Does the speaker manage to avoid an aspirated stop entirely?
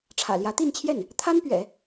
no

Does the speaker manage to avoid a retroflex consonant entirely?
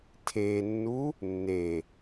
yes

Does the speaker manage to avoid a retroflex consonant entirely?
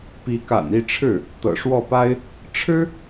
no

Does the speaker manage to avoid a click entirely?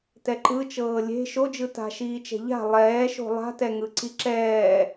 no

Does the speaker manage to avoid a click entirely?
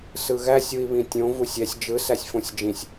yes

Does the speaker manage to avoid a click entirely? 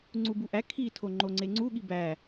no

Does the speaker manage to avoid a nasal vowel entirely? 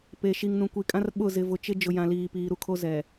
no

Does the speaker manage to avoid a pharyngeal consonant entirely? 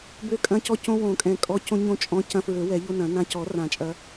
yes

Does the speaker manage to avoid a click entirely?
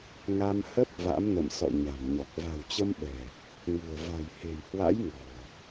yes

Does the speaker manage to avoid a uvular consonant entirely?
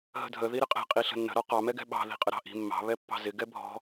no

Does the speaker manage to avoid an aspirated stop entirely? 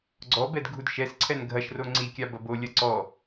no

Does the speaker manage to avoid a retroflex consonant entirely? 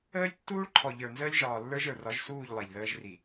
no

